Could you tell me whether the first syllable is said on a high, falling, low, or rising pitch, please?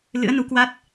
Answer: rising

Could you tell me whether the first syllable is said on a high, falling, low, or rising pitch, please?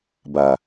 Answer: low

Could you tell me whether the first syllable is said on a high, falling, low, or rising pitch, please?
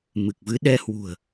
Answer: low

